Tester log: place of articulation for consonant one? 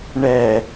retroflex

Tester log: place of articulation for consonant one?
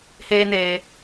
glottal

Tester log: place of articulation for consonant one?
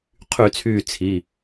uvular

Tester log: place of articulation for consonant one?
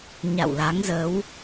palatal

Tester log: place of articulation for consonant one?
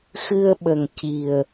velar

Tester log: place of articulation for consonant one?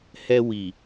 glottal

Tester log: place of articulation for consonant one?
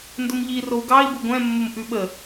alveolar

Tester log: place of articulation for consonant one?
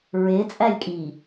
alveolar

